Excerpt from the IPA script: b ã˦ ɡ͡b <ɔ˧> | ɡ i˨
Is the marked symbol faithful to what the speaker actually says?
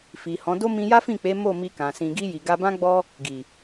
no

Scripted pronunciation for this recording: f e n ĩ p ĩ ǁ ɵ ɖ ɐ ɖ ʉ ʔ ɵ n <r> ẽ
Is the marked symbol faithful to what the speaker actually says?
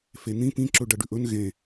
no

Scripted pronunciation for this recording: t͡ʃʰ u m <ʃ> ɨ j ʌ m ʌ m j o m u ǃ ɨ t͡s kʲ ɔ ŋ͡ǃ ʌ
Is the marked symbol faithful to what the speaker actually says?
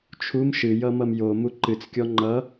yes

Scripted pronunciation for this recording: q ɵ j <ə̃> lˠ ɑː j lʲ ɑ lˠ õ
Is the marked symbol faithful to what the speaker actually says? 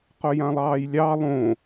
no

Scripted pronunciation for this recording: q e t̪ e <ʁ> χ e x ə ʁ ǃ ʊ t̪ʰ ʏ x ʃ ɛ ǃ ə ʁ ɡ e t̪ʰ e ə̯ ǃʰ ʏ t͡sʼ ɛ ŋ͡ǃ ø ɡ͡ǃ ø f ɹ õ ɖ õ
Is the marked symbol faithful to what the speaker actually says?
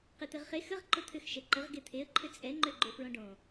yes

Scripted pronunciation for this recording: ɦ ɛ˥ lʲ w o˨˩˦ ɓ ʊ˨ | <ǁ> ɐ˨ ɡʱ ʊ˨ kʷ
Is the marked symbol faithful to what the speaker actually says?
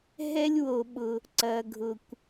no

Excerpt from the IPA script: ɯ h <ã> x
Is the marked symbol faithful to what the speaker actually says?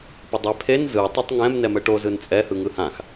yes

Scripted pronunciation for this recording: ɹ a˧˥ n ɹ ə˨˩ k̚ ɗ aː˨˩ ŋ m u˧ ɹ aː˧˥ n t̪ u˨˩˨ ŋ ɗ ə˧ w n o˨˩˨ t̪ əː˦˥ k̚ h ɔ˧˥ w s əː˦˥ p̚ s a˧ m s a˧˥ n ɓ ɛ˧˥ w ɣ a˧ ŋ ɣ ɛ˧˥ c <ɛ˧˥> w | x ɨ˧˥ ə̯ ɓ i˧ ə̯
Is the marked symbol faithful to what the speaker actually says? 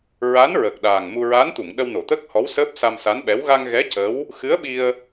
no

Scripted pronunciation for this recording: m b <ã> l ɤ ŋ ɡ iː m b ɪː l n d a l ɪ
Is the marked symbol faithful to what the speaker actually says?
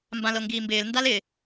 yes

